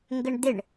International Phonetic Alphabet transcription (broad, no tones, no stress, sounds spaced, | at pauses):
ŋ ɡ ə ɳ d̪ ɪ ɳ